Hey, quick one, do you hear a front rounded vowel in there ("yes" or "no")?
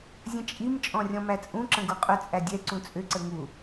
yes